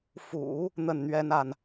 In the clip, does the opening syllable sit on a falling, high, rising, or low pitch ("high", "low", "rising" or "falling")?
low